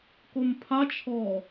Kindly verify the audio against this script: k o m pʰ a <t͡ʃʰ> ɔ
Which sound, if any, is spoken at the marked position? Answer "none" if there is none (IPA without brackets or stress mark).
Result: t͡ʃʰ